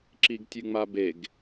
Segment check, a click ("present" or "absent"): present